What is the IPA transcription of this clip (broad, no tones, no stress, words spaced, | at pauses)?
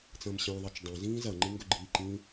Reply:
t͡sɐ̃ːmɕɐ̃ːðˤɐt͡ʃ dˤẽzĩː zɐŋ͡ǃɨ ŋɡɵɡ͡ǃiːǃĩː